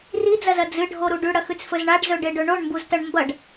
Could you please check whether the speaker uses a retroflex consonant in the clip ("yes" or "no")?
yes